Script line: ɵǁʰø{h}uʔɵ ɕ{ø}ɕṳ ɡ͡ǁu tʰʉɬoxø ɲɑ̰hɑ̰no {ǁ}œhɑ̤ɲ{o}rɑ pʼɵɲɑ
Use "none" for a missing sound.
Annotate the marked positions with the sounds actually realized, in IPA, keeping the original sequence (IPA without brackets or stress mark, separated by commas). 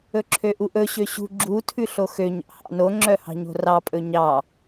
ʔ, ø, ŋ͡ǁ, o̤